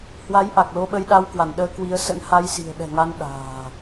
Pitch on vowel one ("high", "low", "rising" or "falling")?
rising